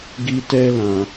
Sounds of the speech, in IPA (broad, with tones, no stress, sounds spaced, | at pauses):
ɡ i˧ t ɛ˧ l ã˨